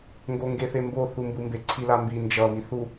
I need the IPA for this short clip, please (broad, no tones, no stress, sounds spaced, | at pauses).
ŋ ɡ o ŋ ɡ e θ e m b o θ u m b ɯ m b e ǀʰ i l a m b i n d͡ʒ ʌ β i θ u